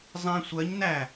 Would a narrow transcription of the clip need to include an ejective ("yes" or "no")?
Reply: no